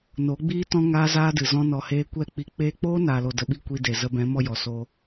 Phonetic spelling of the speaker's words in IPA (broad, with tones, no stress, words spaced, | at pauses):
no˨˦ɡ͡biː˦ tɔ̃˦ŋaː˦zaː˦dɨ˨ zɔ̃˦nɔ˧heː˦ kʷɛ˦k͡pi˧ k͡peː˦ k͡poː˦ naː˨lo˨ də˨ɓi˧ kʷi˧de˨ zə˧bɛ̃˨˦ mɔ˦jɔ˨soː˦